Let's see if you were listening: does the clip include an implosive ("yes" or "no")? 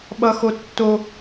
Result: yes